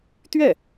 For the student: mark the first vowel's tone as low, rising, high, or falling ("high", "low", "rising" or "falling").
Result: falling